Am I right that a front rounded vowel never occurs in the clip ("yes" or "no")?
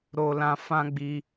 yes